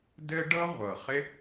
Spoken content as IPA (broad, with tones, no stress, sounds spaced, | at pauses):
d ɘ˥ ɖ ɤ˥ ʁʷ ɤ˩ χ ɪ˥